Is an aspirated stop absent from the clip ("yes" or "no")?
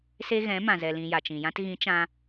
yes